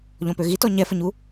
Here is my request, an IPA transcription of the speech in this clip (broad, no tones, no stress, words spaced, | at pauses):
ʎɔ̃pøɣitɔ ɲɛfəɲu